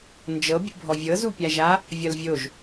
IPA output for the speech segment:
n d͡ʒ ɤ bʲ ṵ bʱ ɔ vʲ ɤ z u pʲ a ʒ a | vʲ ʌ l vʲ o ʒ

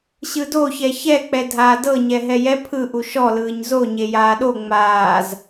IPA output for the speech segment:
ɕ ɯ d o ç ɛ ç ɛ k͡p ɛ dʱ aː d ɤ ɲ ɛ ɦ ɛ j ɛ pʰ ɯ ʔ u ʃ ɔ l ɯː ɲ z o ɲ e j aː ɗ o ŋ͡m aː z

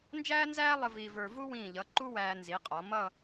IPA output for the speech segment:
n d͡ʒ æː˥ n z æː˥ lˠ ə˧ v i˧ v ə˞˧ v u˥ w ĩː˧˩ ʎ ʌ˩˧ ǃ u˥ w æː˧ n z i˩˧ qʼ ɔ˩˧ m ʌ˥˧

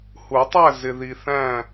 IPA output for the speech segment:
h u˨˩˦ tˤ æ˥˨ z ɪ˨ ð i˨ θ æ̃˥˨

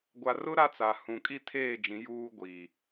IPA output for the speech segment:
ɡʷ a˨ r ʊ˦ ɾ a˦ t͡s a˨ h ũ˨ kʼ i˦ tʰ eː˦˨ d͡ʒ ĩ˨˦ j uː˦ ɡʷ iː˨

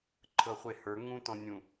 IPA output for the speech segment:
ǃʰ ɤ χʷ e h ə˞ ŋ ũ t ɔ̃ nʲ ũ

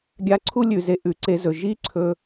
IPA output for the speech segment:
ɡʲ a˧ ǀʰ u˥ lʲ ʉ˩ z e˧ ʔ ʉ˩ ǀ e˧ z ɵ˩ ʒ i˥ ǀʰ ɵ˧

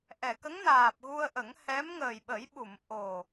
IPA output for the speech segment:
ʔ ɛ˨˩˨ k ə˧˥ ŋ n aː˨˩ p̚ ɣ u˧ ə̯ ʔ ə˨˩˦ ŋ h ɛ˧˥ m ŋ əː˨˩ j ɓ ə˨˩˦ j ɓ u˨˩˨ m ʔ o˨˩

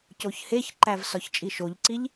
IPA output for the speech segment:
c o ç h e ç ǃ æ v s ɒ ç t͡ʃʼ i ʃ o ʎ ǀ i ʎ

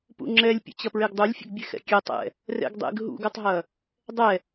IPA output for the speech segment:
p ṵ ŋ͡ǁ ɛ lʲ pʲ ə̰ t͡ɕ ɐ p ɹ e ɡ dˤ u lʲ fʲ ɛ̰ ɡ bʲ e x ɛ̰ kʲ ɛ tˤ ɛ̰ | r ɛ̰ ɡ dˤ ḛ ɡ ɦ ṵ ɡ œ tˤ ɦ ɐ | dˤ ɛ

